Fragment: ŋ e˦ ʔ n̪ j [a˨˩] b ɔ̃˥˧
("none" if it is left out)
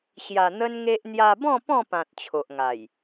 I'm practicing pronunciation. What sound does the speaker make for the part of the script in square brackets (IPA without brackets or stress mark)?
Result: a˧